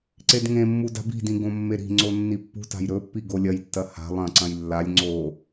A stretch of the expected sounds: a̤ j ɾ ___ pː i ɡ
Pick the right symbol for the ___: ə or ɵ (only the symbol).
ɵ